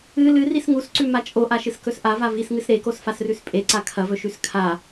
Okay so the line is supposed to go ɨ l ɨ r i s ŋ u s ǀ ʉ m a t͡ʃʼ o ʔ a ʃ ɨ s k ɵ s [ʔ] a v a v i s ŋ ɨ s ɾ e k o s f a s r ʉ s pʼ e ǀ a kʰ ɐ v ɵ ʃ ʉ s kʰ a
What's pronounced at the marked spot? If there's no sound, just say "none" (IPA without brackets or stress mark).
ʔ